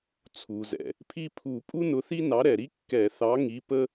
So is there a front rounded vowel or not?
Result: no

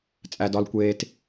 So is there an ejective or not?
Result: yes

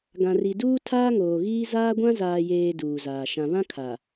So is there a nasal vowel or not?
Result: yes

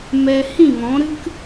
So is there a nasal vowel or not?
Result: yes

